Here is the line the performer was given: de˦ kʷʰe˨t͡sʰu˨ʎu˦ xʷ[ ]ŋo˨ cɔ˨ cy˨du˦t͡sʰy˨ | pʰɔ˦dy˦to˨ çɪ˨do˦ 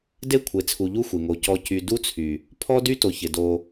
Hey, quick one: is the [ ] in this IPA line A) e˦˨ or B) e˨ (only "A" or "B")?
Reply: B